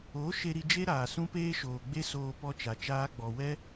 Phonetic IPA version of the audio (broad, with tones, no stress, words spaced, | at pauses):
o˨˦ ʃe˧ɾi˧d͡ʒe˦ɾaː˨ sũ˦peː˦ʃoː˨ɡ͡be˦ soː˧pɔ˧t͡ʃa˨ t͡ʃaː˧ɡ͡bɔ˨wɛ˦